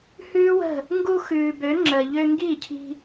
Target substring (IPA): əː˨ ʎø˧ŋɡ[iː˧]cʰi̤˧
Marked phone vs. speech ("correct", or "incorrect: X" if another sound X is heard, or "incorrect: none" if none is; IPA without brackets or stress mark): incorrect: iː˦˨